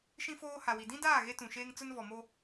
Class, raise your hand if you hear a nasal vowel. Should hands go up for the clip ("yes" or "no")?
yes